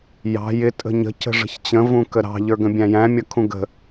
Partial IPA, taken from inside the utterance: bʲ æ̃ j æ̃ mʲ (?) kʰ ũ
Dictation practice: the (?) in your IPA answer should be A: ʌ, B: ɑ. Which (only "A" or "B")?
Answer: A